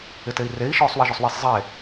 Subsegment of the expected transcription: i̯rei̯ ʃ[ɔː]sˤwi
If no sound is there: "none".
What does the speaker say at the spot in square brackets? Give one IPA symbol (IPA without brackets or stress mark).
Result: ɔː